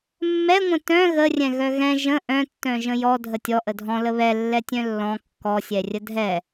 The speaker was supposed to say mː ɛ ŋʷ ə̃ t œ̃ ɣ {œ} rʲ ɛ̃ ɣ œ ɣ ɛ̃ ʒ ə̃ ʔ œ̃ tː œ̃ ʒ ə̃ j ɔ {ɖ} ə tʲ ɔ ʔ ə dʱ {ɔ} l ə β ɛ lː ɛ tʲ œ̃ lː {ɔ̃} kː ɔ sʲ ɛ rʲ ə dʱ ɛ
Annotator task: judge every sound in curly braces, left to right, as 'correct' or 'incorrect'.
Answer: incorrect: ə, incorrect: dʱ, incorrect: ɔ̃, correct

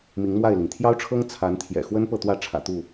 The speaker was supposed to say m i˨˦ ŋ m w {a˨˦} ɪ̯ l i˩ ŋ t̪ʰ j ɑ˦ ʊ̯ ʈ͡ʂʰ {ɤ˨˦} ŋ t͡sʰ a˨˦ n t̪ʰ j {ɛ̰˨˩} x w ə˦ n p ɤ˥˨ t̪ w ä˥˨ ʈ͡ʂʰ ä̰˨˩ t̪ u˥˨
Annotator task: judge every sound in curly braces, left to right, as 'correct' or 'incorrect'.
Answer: incorrect: a˥˨, incorrect: ɤ˦, correct

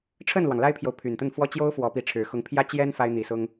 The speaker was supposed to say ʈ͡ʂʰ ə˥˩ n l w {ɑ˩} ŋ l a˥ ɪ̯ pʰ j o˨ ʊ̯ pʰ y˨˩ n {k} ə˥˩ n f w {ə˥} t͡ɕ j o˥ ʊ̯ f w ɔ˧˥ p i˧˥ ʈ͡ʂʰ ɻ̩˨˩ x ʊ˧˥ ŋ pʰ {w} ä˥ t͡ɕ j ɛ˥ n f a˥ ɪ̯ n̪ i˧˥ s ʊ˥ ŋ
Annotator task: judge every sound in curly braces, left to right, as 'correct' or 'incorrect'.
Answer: correct, incorrect: t̪, incorrect: ɔ˥, incorrect: j

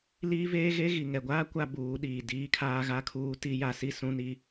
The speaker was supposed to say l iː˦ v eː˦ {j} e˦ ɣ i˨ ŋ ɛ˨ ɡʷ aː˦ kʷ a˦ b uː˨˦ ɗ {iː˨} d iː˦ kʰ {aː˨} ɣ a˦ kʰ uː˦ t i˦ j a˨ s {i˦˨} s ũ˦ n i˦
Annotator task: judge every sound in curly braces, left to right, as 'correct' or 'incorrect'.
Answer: incorrect: ɣ, correct, incorrect: aː˦, correct

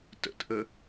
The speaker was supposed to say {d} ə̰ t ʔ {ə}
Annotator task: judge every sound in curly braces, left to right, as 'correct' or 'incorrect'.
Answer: incorrect: t, correct

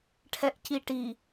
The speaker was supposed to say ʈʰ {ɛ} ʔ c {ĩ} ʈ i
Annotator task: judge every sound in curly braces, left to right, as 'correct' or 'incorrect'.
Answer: correct, incorrect: i

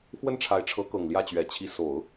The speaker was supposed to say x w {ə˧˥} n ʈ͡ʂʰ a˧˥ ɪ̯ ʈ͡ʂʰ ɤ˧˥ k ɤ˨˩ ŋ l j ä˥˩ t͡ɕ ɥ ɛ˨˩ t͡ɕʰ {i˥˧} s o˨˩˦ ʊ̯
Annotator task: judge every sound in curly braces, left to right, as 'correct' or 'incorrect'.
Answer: incorrect: ə˥˩, incorrect: i˧˥

